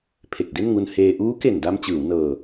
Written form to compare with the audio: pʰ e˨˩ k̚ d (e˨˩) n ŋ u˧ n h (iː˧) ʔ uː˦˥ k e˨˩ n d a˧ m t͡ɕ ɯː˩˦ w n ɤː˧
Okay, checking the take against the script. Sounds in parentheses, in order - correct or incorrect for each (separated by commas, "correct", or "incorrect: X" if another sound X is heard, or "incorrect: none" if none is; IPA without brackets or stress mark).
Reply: incorrect: e˥˩, incorrect: eː˧